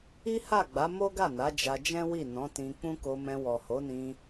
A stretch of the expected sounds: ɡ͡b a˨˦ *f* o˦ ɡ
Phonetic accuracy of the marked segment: incorrect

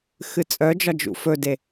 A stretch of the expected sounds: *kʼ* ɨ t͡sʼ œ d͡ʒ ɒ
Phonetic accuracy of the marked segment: incorrect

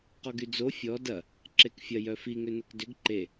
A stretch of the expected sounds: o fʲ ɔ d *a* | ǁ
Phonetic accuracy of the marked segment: incorrect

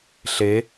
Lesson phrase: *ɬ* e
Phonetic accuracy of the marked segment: correct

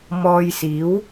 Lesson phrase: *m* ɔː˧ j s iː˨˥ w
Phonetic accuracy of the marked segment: correct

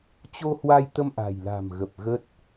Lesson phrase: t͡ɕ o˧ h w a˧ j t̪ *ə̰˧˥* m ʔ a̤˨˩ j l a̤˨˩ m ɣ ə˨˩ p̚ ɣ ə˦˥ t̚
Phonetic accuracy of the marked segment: incorrect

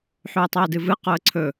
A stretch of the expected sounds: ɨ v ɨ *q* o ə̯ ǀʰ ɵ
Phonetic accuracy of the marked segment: correct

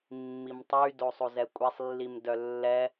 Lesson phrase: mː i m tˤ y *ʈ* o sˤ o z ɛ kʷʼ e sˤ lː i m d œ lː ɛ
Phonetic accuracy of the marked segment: incorrect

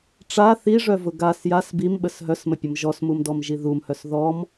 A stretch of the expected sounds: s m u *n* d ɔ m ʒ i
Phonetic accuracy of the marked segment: incorrect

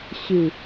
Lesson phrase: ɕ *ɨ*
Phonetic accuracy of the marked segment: correct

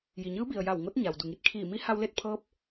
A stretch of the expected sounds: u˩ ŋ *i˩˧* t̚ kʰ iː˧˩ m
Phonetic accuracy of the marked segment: incorrect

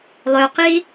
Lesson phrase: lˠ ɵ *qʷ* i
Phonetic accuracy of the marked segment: incorrect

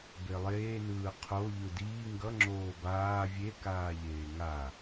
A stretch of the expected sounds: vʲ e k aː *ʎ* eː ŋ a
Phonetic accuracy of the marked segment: correct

